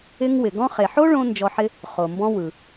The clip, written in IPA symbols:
ɪ˧ ŋ w ɪ˩ ɡ ɔ̃˥ χ e˩ ħ o˥ ɭ õ˧ n d͡ʒ ɔ˧ ħ ɪ˥ | χ o˩ m b ɔ̃˧ w ɯ˩

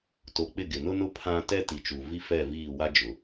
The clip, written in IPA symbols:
t o˨ k͡p ɪ˦˨ ɡ ɪ˨ n ʊ˦ n ʊ˦ pʰ ã˦ t ɛ˦ t i˨ t͡ʃ u˨ v i˦ f ɛ˦˨ v iː˦˨ w a˦ d͡ʒ ʊ˨

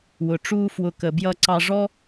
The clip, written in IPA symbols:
w ʊ˨ ʈ͡ʂ uː˧ f w ʊ˨ k ə˨ b j ʌ˧ ǀ ɑ˧ ʐ ɔ˦

